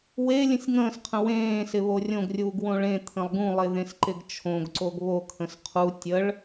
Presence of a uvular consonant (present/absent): present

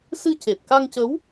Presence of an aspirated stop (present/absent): absent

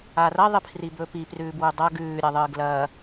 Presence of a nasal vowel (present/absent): absent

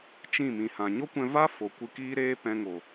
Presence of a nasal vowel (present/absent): present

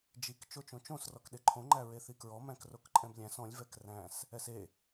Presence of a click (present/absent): present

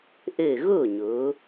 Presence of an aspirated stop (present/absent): absent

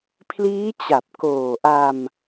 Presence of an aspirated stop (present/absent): present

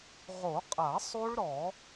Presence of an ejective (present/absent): present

